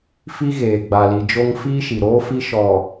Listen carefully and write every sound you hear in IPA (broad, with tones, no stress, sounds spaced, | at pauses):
f i˦ ɣ eː˨ ɡ͡b a˨ l i˨ d͡ʒ o˦ ŋ f iː˦ ʃ i˨ ɾ oː˦ f i˦ ʃ ɔ˨